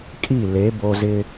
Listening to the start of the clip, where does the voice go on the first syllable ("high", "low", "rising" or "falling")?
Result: falling